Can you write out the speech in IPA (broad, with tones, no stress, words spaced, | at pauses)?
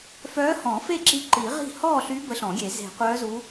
fœː˧˥hɔ̃˨˩˦fe˥˨ ǁi˧˥ǃi˨˩˦ʁi̤˥˨ hɔː˥˨ɬy˧˥ bə˧˥ɬɔ̃˨˩˦ɡʲe˨˩˦ ze̤˨˩˦qʷœː˧˥zu˧˥